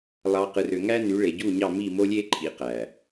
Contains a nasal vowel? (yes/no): no